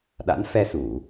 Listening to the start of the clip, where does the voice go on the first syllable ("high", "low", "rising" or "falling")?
rising